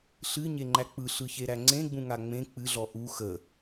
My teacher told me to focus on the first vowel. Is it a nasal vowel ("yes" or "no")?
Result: no